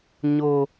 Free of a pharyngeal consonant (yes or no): yes